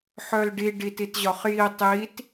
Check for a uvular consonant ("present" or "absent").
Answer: present